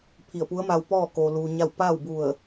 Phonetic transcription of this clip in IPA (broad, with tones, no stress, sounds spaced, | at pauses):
pʰ i˧˩ ə̯ p u˧˥ ə̯ m a˧ w p ɔː˥˨ k oː˧ l uː˧ ɲ a˥˨ w p a˥˨ w b u˧˩ ə̯